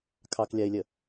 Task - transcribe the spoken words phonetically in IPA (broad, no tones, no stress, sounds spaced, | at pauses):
kʰ ɑ k lʲ a ɪ̯ lʲ ə